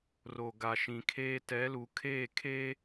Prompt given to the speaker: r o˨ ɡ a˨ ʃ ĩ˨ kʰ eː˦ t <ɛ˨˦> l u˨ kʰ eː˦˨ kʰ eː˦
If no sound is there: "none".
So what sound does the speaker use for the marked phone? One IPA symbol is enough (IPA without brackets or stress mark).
ɛ˨˦